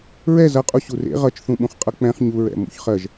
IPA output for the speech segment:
ɹ ɛ z ʌ qʼ u ɕ u r ḛ ʁ ʌ t͡ʃ θ ũ ɓ ũ χ qʼ ʌ k͡p ɛ̃ χ ɲ u ɹ ɛ̰ m ṵ ç χ ɜ ʒ

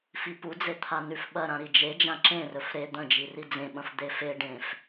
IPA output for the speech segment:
f i p u d͡z e t̪ʰ a n ʉ f ɓ ɐ ɾ ã ɾ i d͡ʒ e d͡ʒ ã ǁ ẽ r ɵ f ɾ e d̪ ɐ̃ d͡ʒ i r i d͡z ẽ ɓ ɐ̃ f d̪ e f e ɖ ẽ f

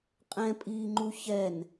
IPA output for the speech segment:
qʼ ɛ̃ pʼ iː ŋ͡ǃ u ç ɛ n

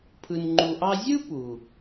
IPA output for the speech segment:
pʰ ɯ˧ n ŋ͡ǃ u˧ ʔ ɑ˥ zʲ ɯ˥ p u˩

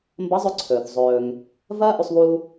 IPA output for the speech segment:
m b ɐ˧˥ zˤ ʉ˧ ǀʰ ɵː˩ θ zˤ ɵː˩ ŋ | v ɐː˥ ʔ u˧ sˤ β uː˧

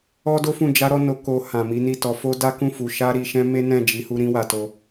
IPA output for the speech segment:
ɔ˦ d o˦ f ũ˦˨ d͡ʒ a˨˦ ɾ ɔ˧ n o˧ k o˧ h ã˨ m i˨˦ n i˦˨ t ɔ˨˦ f o˦ d a˦ k ũ˦˨ f u˨ ʃ a˧ ɾ i˨ ʃ ɛ̃˧ m e˦ n ɛ̃˦˨ d͡ʒ i˨˦ h u˦ ɾ ĩ˧ w a˨ t o˧

